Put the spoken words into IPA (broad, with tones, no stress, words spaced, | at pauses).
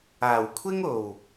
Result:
aː˨˩wkʷʰɪ˥ŋ o˨˩w